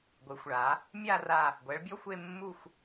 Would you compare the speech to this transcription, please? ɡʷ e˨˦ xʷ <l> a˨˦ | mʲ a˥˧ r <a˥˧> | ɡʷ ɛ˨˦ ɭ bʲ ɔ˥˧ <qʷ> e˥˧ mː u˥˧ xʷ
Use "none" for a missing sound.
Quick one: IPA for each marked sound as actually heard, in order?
ɭ, a˥˧, xʷ

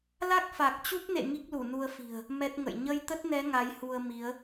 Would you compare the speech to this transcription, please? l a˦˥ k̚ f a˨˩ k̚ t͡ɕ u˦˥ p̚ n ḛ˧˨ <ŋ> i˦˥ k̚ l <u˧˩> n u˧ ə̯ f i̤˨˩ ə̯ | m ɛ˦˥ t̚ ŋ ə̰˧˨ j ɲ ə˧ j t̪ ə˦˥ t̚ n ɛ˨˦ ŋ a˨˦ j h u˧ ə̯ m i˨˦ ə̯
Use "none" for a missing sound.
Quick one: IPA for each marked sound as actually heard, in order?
ŋ, u˧˩

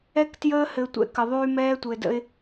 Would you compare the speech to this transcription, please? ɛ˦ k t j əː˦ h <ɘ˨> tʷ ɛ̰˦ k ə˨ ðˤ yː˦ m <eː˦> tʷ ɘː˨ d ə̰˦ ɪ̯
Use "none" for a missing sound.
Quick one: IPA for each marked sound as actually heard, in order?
ɘ˨, ɛː˦

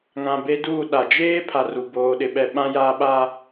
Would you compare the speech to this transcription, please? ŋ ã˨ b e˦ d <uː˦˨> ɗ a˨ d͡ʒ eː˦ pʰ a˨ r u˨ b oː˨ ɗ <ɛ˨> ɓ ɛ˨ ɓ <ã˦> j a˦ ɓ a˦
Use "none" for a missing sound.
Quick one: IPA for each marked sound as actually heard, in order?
uː˦˨, ɪ˨, ã˦

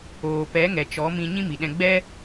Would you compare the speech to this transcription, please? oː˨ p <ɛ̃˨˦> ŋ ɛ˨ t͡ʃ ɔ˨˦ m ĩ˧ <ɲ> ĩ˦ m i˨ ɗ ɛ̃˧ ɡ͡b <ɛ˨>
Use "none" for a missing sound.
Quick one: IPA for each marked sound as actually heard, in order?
ɛ˨˦, ɲ, ɛ˦

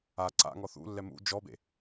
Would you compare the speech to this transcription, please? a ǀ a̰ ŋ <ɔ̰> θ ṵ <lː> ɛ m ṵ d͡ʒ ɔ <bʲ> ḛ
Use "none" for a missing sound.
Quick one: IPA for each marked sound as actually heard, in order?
ɔ, lː, b

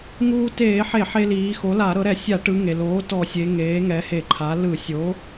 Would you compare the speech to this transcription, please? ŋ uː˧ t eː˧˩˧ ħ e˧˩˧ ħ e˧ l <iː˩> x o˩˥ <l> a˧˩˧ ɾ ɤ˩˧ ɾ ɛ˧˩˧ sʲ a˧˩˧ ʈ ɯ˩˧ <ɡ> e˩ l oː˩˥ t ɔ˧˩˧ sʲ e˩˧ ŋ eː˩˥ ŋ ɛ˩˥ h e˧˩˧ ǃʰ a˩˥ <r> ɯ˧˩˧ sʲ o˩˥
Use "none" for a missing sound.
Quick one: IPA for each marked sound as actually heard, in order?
iː˩˧, l, ŋ, l

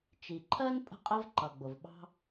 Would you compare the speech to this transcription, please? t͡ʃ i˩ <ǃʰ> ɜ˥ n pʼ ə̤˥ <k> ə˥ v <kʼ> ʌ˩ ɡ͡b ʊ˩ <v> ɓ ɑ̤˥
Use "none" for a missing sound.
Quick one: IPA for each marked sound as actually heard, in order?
ǃʰ, qʼ, ǃ, v

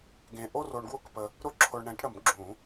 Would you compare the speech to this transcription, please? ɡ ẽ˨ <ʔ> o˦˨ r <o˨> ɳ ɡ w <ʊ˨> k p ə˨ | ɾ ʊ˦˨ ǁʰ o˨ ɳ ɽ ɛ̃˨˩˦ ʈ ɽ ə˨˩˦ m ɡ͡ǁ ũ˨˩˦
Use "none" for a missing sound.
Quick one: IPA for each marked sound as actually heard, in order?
ʔ, o˨, ʊ˦˨

